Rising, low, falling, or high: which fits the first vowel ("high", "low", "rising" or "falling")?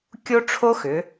high